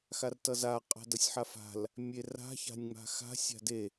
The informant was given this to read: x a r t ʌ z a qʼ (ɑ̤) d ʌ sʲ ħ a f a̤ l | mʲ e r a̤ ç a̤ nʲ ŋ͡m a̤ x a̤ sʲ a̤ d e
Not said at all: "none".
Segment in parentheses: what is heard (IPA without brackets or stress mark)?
a̤